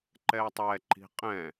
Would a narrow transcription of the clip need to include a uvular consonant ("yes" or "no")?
yes